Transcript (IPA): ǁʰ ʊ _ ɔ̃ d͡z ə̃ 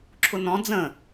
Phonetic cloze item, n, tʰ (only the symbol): n